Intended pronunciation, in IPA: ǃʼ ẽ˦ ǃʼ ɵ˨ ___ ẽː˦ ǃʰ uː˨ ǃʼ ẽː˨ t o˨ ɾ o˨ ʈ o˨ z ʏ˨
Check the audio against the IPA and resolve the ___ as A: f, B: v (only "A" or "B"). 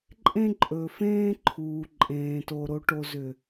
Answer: A